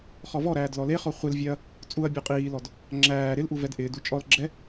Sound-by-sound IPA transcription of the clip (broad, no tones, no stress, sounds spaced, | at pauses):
χ ɔ v ɔ ɾ æː d l ɔ l e χ ɔ χʷ ɪ l vʲ ɛ ɐ̯ | t͡sʼ u ɐ̯ bʲ ɔ qʼ iː l ɔ d | ŋ͡ǁ æː ɾ ɪ l ʔ u v ɛ d ʔ ɪː d u t͡ʃʼ ɔ l ɡ͡ǁ ɛ